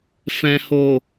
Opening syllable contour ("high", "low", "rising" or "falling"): low